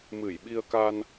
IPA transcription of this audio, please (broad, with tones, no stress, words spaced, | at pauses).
mɨ˧˩jɓi˧ə̯ka˧n